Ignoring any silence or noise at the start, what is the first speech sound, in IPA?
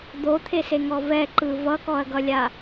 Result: d̪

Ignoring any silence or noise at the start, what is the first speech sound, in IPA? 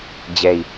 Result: d͡ʑ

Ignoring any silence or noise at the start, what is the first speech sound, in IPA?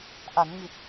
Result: ʔ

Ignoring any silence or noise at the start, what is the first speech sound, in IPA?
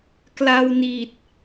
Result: k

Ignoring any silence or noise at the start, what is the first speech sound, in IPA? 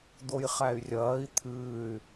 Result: d̪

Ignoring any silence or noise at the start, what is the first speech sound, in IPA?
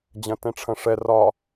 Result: d͡ʑ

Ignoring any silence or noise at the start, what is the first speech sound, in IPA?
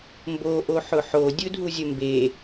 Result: m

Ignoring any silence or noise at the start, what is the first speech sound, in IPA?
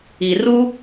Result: i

